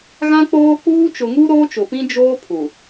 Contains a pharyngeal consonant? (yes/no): no